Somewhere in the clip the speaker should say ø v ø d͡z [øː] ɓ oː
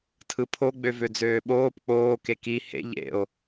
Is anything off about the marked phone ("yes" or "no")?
no